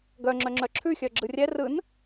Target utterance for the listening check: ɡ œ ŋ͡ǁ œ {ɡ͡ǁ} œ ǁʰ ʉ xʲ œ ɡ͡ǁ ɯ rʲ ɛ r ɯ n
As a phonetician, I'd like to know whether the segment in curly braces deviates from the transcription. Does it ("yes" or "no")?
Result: yes